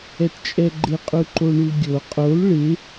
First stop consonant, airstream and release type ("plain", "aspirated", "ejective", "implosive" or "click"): plain